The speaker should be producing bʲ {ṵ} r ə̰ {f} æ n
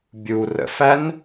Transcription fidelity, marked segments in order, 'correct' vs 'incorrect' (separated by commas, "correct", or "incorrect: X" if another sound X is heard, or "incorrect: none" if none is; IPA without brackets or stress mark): incorrect: u, correct